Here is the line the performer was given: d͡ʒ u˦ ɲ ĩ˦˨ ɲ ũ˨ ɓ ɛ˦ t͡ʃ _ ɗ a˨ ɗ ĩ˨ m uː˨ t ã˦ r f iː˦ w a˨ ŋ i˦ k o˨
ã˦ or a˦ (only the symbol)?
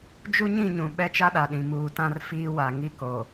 a˦